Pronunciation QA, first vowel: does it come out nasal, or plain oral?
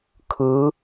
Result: oral